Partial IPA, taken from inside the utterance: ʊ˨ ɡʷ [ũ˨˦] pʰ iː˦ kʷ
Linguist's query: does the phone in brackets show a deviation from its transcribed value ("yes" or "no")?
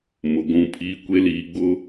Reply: yes